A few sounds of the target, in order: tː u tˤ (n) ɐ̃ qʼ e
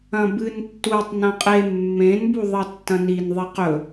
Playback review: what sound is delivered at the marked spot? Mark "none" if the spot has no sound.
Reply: n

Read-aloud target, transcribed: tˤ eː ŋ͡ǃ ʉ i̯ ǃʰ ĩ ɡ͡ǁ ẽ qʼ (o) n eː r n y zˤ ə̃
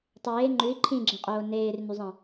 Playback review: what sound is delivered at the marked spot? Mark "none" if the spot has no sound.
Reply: oː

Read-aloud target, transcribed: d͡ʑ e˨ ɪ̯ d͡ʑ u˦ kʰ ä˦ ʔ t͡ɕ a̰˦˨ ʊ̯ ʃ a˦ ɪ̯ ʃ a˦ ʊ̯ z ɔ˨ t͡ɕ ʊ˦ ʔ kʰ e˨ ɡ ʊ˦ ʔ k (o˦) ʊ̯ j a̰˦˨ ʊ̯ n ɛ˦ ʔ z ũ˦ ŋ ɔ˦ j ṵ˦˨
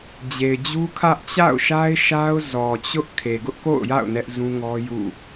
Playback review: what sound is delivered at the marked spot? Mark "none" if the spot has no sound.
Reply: o̰˦˨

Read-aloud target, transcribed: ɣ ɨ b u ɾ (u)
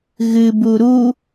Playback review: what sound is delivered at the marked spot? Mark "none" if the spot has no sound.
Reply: u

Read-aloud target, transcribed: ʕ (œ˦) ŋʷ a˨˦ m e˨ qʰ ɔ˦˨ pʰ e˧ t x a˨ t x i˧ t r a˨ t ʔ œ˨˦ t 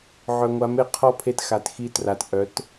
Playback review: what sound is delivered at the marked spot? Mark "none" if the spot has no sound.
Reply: œ˨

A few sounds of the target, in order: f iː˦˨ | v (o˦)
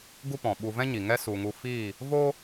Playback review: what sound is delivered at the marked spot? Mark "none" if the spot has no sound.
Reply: o˦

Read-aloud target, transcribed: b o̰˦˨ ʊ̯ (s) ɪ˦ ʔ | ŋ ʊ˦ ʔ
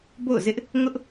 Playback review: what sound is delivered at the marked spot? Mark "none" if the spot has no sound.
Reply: z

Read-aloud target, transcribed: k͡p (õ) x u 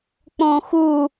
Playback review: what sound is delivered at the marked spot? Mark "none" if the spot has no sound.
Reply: õ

